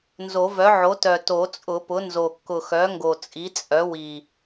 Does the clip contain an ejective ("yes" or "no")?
yes